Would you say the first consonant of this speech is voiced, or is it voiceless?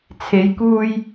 voiceless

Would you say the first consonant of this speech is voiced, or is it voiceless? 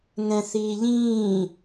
voiced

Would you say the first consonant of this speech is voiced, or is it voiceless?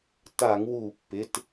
voiceless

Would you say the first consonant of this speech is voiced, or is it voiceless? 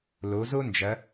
voiced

